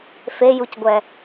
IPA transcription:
fejucɡʷɛ

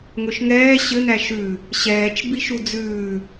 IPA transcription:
ŋɵʃŋɛː ɕɘ n̪æʃʉ | ɕɛːt͡ʃ biʃud͡zʉː

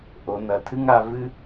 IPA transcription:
ʔo˩˧nɐ˩˧tʰɨ˥ŋa˥˧ vɨ˥

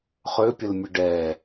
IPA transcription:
χøpʲəlmʲə ɖɛ

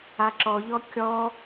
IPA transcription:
aǁɔʎɔ kʲɔ

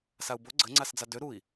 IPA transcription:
sau̯bo ɡ͡ǀə ŋ͡ǀasd͡zadø ɾui̯

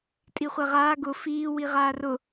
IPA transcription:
tʼiχʷɛʁaː ɡʊ fiː wiʁaːrʊ

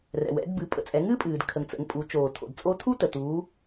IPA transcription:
rɛ̰˩wɛ̰˩˧dbɨ˩˧ pʼə̰˩t͡sʼɛ˩˧ŋɨː˥pʼɨː˩d kʰə˩ŋt͡sə̰˩˧ŋpʼu˩˧ t͡ʃoː˩tʰo̰˩d t͡sʼo˧˥tʰu˥tə˩ tuː˩˧

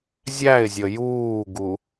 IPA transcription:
zʲæɪ̯zʲə juːɡu

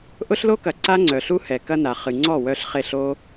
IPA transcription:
ʔʊ˦ɬlo˦kɐ˨ ǀa˦ŋ͡ǀœ˨ɬu˦hɛ˨ kɐ˦na˨ χɨ˨ŋ͡ǀɔ˦˨ wœ˧ɬχe˦˨ɬ o˧

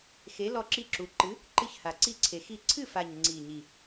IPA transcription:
xe˨˥ lɔ˥˩ǁi˥˩ǁu˨˥ ǃɨ˨˥ | ǃɨ˥˩çha˨˩ǀi˥˩ǀʰe˨˩ xi˥˩ ǀʰɨ˥˩fa˨˩ɲ ŋ͡ǀi˨˩ɲi˨˩

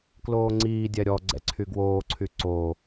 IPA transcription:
kloːŋ͡ǀiːdʲɛ ɾʲɔɡ͡ǀɛ̰ ǀʰyɡwoːǀʰy ǀo

